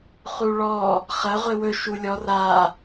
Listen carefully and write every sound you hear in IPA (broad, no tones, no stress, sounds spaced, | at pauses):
χ u ɭ ɔ | χ ɐ ʁʷ e w ɵ ʃ u lʲ ɔ r a